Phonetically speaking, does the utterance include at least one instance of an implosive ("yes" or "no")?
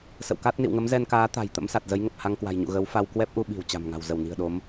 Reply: yes